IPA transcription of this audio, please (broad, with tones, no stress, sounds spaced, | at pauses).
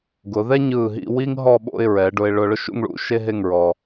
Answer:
ɡ ʊ˩˧ ð ɛ˥ ɲ ɯː˧˩ ɦ ḭ˥˧ w i˥ ŋ ɦ ɔ˥˧ ɓ o̰˥˧ ɪ̯ ɹ ɛ˩˧ ɖ ʊ˧ ɪ̯ ɭ ʊ˧ ɭ ʊ˥˧ ʃ ṵ˥˧ ŋ ɭ ṵ˥˧ ʃ e˥ ɦ e˥˧ ŋ ɹ ɔ˧